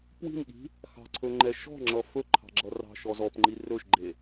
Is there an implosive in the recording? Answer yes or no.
yes